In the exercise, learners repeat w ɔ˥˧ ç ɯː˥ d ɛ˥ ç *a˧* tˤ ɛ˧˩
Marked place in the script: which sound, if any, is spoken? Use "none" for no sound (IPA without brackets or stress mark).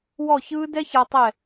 a˧